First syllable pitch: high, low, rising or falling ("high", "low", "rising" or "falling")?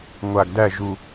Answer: low